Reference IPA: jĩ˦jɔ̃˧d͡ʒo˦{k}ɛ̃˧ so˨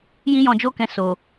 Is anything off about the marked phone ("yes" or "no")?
no